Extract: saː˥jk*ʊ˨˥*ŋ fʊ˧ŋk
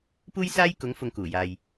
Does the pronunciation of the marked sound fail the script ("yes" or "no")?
no